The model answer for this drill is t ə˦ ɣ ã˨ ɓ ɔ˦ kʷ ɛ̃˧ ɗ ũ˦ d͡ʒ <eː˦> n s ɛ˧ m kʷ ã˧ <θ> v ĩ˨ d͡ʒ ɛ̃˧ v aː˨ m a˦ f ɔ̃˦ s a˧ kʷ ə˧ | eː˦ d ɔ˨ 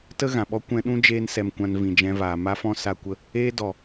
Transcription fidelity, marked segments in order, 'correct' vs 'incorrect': correct, incorrect: n

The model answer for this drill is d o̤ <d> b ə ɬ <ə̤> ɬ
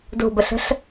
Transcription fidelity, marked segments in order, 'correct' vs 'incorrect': incorrect: none, correct

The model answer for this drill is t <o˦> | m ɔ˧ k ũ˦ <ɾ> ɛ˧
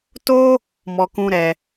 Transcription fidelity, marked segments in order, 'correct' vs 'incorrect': correct, correct

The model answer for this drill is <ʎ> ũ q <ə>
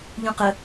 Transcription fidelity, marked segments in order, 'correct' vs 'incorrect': correct, correct

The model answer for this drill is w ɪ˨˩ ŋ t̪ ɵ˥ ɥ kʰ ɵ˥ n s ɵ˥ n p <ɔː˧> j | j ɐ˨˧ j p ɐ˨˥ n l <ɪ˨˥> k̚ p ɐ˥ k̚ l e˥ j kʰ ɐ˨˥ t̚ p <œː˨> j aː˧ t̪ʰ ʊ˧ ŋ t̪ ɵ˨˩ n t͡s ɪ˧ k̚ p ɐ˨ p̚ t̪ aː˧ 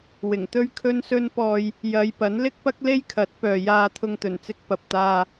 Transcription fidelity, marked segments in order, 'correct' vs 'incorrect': correct, incorrect: ɪ˥, correct

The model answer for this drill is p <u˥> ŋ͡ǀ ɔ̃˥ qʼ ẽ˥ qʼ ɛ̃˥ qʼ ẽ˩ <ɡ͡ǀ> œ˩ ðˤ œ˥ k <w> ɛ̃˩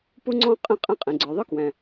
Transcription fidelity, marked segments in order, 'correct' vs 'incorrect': correct, correct, correct

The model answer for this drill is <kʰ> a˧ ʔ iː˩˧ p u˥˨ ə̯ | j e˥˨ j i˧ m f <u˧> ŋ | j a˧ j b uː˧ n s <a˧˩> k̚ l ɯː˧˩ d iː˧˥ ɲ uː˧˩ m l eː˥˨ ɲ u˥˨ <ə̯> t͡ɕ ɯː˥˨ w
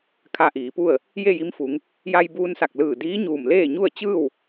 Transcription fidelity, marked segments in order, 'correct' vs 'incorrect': correct, incorrect: u˩˧, correct, correct

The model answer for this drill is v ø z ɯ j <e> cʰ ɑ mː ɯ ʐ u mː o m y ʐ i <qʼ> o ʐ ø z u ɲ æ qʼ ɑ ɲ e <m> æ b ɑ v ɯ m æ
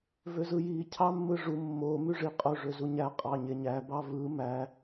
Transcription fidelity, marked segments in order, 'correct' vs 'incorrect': incorrect: i, correct, incorrect: ɲ

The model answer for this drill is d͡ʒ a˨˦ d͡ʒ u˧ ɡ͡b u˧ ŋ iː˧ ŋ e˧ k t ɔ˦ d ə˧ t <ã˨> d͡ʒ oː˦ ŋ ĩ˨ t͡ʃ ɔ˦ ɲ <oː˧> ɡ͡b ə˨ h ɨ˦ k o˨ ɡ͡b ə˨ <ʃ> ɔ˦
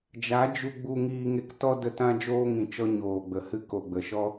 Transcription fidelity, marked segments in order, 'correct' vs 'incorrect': incorrect: ã˦, incorrect: oː˨, correct

